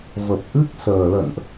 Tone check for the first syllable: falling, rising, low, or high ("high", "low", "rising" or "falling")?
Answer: low